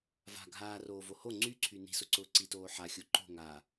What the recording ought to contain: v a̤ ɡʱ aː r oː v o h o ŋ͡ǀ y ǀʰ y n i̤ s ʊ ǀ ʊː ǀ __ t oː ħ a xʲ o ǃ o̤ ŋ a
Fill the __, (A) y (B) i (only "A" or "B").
B